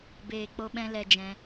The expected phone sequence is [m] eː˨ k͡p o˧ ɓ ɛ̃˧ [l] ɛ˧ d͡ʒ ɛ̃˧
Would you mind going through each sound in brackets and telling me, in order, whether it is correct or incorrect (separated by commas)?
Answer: incorrect, correct